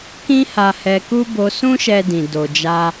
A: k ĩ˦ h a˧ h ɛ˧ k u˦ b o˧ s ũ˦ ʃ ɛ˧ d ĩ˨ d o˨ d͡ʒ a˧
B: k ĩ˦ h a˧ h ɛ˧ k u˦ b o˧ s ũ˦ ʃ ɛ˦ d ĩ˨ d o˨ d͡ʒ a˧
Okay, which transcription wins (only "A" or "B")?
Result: A